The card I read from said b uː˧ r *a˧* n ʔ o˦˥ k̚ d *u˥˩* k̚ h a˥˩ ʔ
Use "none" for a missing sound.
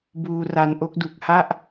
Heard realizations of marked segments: a˧, u˨˩

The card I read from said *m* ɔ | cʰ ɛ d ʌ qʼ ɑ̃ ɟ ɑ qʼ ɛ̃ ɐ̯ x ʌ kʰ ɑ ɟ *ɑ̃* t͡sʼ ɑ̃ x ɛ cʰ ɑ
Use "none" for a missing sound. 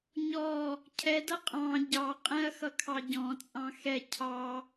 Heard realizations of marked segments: ɲ, ɔ̃

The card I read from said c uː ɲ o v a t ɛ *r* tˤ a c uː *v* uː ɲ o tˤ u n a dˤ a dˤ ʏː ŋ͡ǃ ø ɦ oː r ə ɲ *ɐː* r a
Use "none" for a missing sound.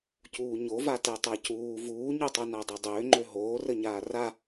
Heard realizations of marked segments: none, v, aː

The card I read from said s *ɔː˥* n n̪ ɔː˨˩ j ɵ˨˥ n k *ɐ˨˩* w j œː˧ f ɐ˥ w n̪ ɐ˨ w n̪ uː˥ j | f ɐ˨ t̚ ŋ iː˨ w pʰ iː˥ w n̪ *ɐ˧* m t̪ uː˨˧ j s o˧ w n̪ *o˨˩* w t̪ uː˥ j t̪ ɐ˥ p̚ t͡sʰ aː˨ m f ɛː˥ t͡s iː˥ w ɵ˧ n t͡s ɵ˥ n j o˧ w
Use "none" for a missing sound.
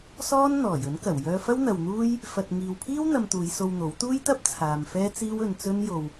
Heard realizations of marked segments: ɔː˥, ɐ˨˩, ɐ˧, o˨˥

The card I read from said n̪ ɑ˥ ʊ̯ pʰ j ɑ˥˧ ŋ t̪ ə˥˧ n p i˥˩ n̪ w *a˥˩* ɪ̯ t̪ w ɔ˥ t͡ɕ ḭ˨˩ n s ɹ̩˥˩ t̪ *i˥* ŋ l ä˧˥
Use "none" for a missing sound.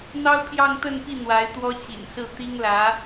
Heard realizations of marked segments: a˧˥, i˥

